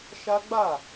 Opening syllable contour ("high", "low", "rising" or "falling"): high